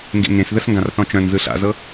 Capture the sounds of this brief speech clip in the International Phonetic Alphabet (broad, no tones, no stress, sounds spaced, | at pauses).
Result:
ŋ ɡ ḛ ŋ ẽ s ð ə s ŋ ɡ ã r θ ɔ̃ t͡ʃ œ̃ n z ɯ ɬ a̰ z ɤ